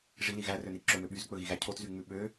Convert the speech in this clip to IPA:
ʐ i l i ɣ æ r ø n i ǁ ɵ m ø ɓ y z k͡p ɵ ɣ i ɣ æ cʰ o t z y ŋ͡m ʉ ɓ ø

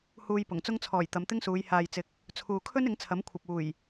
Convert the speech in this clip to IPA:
h uː˧ j p ʊ˨˩ ŋ t͡s ʊ˧ ŋ t͡sʰ ɔː˨˩ j t̪ ɐ˨˧ m t̪ ɪ˥ ŋ s uː˨˧ j h aː˨ j t͡s ɪ˨ k̚ | t͡sʰ uː˨ kʰ ɵ˥ n ɪ˨˥ ŋ t͡sʰ ɐ˨˥ m kʷʰ ɐ˨ p̚ uː˨˩ j

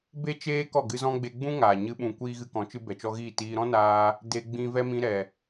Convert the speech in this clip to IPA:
b e˦ t͡ʃ eː˦ k ɔ˦˨ ɡ ɨ˧ z ɔ̃˦ ɡ͡b e˧ ɡ͡b ũ˦ ŋ aː˨ ɲ ɨ˦ ɓ ũ˧ kʷ iː˦ ɣ ɨ˧ k ɔ̃˨˦ t͡ʃ ɨ˧ b ɛ˨ t͡ʃ ɔ˧ ɣ iː˦˨ t iː˧ ɾ ɔ̃˦ n aː˧ | d e˧ ɡ͡b ĩ˧ v ɛ˦ m ĩ˧ ɾ ɛ˨

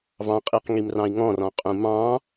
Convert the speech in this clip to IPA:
v ɑ̃ qʼ i q ŋ i m r ɑ̃ i̯ ŋ ɔ̃ r ɔ̃ qʼ ũ m ɑ̃

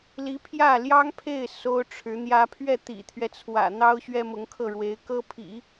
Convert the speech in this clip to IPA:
l i˧˥ pʰ j ä˥˩ l j ɑ˥ ŋ pʰ e˥˩ ɪ̯ s o˥ ʊ̯ ʈ͡ʂʰ ɻ̩˧˥ n̪ j ä˥ pʰ ɥ ɛ˥˩ t̪ ḭ˨˩ t̪ʰ ɥ ɛ˦ t͡sʰ w ä̰˨˩ n̪ ɑ˥ ʊ̯ ɕ ɥ ɛ˥ m ʊ˧˥ ŋ kʰ ɤ˥˩ ɻ w e˧˥ ɪ̯ k ɤ˥ pʰ ḭ˨˩˦

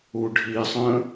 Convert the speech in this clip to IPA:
u ɖʱ i sˤ ə̃

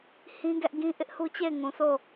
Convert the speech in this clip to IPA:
h ĩ˦ ɡ ɛ˦ ʔ ɡ ĩ˦ ʔ ɪ˦ ʔ h u˦ t͡ɕ e˦˨ ɪ̯ ŋ ũ˨ s o˦˨

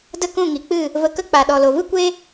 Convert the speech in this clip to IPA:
d ə˦ k ũ˦˨ ŋ i˨ k͡p ɨ˦˨ | v ə˧ k ə˦ k͡p a˨ ɗ ɔ˨ l o˨ v ɨ˦ kʷ e˦

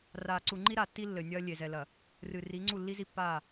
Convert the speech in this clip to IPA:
r aː˨ ǀ u˨ ŋ͡ǃ i˦ ɾ a˨ tː i˦ lː ɘ˨ nʲ ɐː˦ lʲ e˨ z ɛ˨ l ɐ˨ | r ɨ˨ r i˨˦ ŋ͡ǀ u˦˨ lː i˦ z i˦ pː aː˦˨

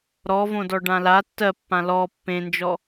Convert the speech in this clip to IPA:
ɾ ɔ v õ d ɔ ɖ ã l a tː ɜ pː ã l ɔ pː ẽ n d͡ʒ ɔ

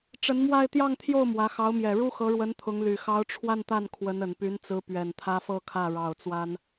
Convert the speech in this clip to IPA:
ʈ͡ʂ ə˧˥ n m w a˥˧ ɪ̯ t̪ j ɑ˥˧ ŋ t̪ʰ j o˥˩ ʊ̯ m w ä˧˥ x ɑ˧˥ ʊ̯ m j ɛ˨˩ ɻ u˥ x ɤ˧˥ ɻ w ə˧˥ n t̪ʰ ʊ˧˥ ŋ l y˨˩ x ɑ˧˥ ʊ̯ ʈ͡ʂʰ w a˥˧ n t̪ a˥˩ n kʰ w ə˧˥ n ə˨˩ n p y˧˥ n t͡s ɹ̩˧˥ p ɥ ɛ˨˩ n t̪ʰ ä˥ f ɤ˥˧ kʰ ä˥˩ ɻ ɑ˨˩ ʊ̯ t͡s w a˥ n

